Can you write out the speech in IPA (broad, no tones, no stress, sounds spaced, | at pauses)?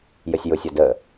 j ə sʲ j ʊ sʲ ɔ d əː